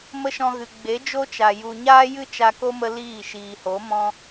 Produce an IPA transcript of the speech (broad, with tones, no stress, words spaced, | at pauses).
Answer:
mə˦ʃɔ̃˧ɣɨ˨ ɡ͡be˨˦d͡ʒo˦t͡ʃa˨ ju˨ ɲaː˦jɨ˦ t͡ʃa˧ko˦mə˧ liː˦˨ ʃiː˨ho˨˦ mɔ̃˦